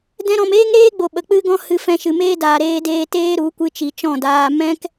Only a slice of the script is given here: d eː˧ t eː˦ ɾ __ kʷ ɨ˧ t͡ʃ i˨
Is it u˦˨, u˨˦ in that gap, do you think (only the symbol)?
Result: u˨˦